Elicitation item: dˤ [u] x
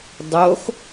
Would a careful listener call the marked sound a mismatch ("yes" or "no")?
yes